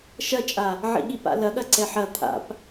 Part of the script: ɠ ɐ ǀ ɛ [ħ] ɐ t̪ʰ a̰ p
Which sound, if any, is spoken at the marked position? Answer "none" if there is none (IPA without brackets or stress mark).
ħ